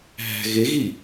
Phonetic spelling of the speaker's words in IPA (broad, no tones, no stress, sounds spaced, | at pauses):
ɦ æ̤ ɣ e ɣ i